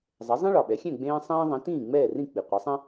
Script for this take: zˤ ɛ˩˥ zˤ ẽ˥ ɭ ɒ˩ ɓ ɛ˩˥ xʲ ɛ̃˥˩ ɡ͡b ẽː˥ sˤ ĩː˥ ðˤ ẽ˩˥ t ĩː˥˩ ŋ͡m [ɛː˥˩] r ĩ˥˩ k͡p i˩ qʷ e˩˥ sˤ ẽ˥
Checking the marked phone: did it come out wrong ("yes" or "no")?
no